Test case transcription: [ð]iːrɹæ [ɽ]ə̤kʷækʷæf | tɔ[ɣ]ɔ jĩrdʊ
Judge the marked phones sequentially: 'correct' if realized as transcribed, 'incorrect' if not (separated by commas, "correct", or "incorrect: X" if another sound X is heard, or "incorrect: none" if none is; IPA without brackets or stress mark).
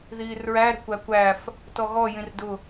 correct, incorrect: ɾ, correct